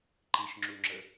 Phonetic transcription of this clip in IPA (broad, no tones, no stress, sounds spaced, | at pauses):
ǃ i ʃ ŋ͡ǁ u ŋ͡ǁ ə